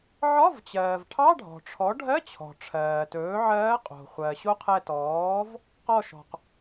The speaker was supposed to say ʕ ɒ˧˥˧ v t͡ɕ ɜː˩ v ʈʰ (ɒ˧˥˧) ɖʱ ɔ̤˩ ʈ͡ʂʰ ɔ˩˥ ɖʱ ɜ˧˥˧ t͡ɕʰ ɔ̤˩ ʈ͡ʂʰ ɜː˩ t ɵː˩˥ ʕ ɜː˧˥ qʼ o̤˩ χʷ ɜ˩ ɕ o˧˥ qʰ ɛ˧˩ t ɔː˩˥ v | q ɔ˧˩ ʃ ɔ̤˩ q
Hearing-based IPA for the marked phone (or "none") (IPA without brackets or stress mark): ɑ˧˥˧